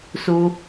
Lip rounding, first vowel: rounded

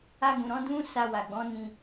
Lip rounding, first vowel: unrounded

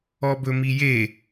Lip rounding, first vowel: rounded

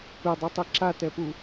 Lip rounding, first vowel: unrounded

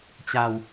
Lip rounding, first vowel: unrounded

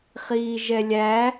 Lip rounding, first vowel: unrounded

